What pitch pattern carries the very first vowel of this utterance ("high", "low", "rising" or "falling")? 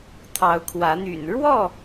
rising